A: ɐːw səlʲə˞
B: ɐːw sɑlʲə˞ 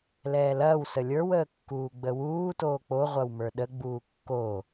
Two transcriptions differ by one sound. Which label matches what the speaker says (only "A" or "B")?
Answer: A